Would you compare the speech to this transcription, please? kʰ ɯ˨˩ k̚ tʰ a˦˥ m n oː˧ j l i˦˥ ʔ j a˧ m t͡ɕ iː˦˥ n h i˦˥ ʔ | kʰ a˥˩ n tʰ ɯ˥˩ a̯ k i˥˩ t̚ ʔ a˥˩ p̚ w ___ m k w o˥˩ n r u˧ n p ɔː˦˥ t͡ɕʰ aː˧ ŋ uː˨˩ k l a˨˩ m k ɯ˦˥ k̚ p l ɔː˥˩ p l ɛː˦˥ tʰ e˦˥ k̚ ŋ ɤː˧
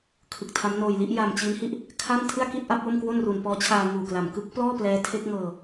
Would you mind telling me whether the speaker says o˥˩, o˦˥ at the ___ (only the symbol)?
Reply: o˥˩